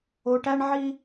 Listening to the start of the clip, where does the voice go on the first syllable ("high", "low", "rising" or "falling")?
low